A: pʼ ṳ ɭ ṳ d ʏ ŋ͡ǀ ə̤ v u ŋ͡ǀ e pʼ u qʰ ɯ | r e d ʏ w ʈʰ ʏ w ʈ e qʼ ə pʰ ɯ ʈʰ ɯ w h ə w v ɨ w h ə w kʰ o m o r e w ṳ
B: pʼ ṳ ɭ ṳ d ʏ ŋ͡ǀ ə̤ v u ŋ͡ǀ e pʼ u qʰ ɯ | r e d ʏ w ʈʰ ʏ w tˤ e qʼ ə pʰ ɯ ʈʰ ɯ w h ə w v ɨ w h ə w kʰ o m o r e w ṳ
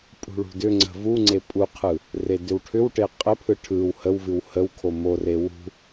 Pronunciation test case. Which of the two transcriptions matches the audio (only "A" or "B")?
A